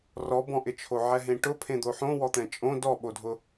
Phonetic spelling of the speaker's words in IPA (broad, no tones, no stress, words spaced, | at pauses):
rɔbɔ̃ʔɪt͡ʃʰo ʕɛɦẽʈʊ pʰẽd̪oħõ wɔt̪ɛ̃t͡ʃʼõ dɔɓodʱʊ